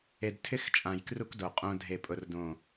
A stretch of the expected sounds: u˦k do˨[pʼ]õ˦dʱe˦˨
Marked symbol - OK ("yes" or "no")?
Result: no